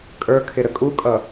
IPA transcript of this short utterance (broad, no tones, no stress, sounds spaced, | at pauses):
kʼ ə˞ kʰ ɪ ɾ ə kʼ u kʼ ʌ